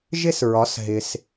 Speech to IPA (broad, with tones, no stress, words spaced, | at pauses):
ʒɪ˥sɹɒ˩˥s ɦɪ˩s